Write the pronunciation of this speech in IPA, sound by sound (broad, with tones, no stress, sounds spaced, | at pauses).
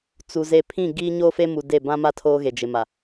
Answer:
t͡s u˨ z e˨ pʰ ĩ˦˨ ɡ iː˦ ɲ oː˦ f e˦ m u˨ d e˦˨ b ã˦ m a˦ tʰ oː˦ ɣ e˨ d͡ʒ ɪ˨ m a˨